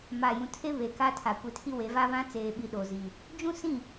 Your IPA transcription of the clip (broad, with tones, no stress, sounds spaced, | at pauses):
m a˨ j ũ˨ tʰ e˦ β e˨ k a˦ tʰ a˨ kʷ i˨ tʰ i˦ w e˨˦ v a˦ β ã˦ t͡s eː˨ ɓ i˨ ɗ o˨ z i˨ | d͡ʒ ũ˦ s ĩ˦˨